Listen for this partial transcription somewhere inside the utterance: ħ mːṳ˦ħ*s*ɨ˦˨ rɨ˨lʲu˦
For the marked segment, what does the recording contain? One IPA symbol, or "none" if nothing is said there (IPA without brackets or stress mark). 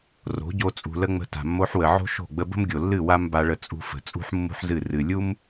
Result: z